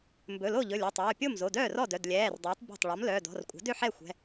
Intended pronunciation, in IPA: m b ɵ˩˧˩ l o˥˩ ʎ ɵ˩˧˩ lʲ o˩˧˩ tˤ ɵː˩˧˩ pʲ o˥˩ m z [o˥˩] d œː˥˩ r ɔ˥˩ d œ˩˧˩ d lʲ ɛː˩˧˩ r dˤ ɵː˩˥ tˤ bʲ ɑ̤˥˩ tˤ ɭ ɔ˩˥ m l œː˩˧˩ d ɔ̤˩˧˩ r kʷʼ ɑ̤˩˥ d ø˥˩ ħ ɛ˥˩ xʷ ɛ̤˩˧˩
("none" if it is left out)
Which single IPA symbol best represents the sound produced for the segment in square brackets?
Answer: o˩˧˩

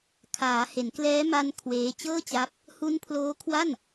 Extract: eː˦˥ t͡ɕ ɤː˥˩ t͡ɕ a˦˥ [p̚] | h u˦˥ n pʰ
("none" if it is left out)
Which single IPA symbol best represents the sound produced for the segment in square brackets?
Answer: p̚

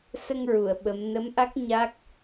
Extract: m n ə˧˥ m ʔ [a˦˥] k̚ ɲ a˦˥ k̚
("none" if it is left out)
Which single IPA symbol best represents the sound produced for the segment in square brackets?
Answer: a˦˥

